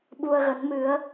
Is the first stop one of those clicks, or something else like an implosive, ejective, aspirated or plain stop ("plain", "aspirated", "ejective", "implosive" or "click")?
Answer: implosive